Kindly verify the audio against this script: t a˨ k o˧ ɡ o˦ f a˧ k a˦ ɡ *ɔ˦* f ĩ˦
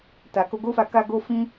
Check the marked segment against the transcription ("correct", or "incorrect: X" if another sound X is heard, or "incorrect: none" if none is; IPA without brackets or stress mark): incorrect: o˦